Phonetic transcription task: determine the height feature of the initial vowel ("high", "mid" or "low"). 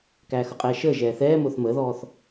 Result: low